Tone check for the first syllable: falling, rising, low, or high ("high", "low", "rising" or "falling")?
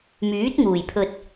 rising